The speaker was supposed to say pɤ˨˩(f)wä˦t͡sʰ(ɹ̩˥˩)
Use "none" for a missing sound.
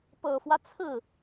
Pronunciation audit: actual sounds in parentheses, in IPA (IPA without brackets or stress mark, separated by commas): f, ɹ̩˥˩